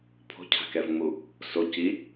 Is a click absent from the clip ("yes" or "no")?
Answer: yes